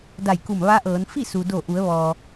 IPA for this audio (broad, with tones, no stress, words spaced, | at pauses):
da˧˩jku˧˩m ʋa˧˥ʔɤː˩˧n fi˥˨su˩do˧˩ʔu˩˧ə̯ ʋɔː˩